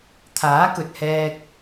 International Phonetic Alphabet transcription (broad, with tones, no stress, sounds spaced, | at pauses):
t̪ʰ aː˨˥ k ɵ˨ t̚ h ɛː˧ k̚